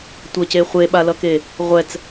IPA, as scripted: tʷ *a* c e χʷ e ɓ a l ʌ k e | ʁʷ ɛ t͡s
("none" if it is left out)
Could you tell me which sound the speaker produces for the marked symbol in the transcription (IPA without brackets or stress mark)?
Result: ʌ